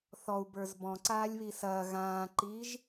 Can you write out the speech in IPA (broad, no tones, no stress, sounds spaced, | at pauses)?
θ ɔ u̯ b ə˞ z b ɔ̃ ǀ aː lʲ β i s ɐː ɣ ãː ǃ iː ʒ